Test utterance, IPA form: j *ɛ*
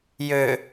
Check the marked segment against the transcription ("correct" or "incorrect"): incorrect